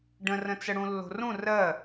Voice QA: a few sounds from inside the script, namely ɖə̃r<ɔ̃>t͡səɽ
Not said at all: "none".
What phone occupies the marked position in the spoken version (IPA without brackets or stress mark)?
ə̃